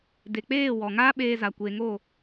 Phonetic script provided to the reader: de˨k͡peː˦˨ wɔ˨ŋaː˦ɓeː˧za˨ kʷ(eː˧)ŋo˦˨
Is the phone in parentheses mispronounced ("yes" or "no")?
yes